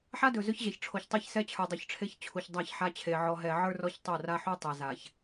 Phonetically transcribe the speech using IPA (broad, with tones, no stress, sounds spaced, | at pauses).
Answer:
ħ a˦ d ɵ˨ z ɵ˦ ç ʑ ɛ˨ ç ʈ͡ʂʰ o˨ ç tˤ e˦ ç s ɛ˦ t͡ɕʰ ə˞˨ dˤ ɵ˨ ç ʈ͡ʂʰ e˦ ç t͡ɕʰ u˨ ç dˤ a˦˨ ç ħ a˦ t͡ɕʰ e˨ ʕ ɔ˨ ɦ ɛ˨ ʕ ə˞˦ r ɔ˦ ç tˤ o˦˨ r a˦ ħ u˦ tˤ ɛ˨ z a˨ ç